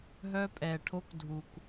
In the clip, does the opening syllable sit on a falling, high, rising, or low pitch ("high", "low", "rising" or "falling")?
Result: high